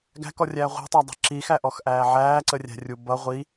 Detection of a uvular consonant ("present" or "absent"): present